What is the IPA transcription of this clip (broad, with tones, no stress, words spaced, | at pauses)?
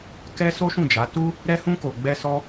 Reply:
kɛ˦ so˦ʃũ˦˨d͡ʒa˨˦tu˦ | ɾɛ˦hũ˦ko˧ ɡ͡bɛ˦sɔ˦